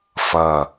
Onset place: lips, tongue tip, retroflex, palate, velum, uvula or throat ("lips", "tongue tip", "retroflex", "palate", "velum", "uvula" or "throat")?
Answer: lips